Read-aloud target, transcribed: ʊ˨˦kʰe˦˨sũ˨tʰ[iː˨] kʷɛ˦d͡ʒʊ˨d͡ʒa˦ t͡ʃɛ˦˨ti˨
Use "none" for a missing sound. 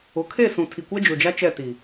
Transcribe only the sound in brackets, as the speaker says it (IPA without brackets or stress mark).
i˨